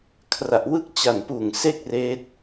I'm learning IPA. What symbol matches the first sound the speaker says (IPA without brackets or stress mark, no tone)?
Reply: kʰ